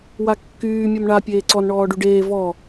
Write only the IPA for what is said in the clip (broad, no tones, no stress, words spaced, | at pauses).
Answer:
wakːyː mʲomɳa pʲeːǀɔn ɳɔːɖyɖeː vɔ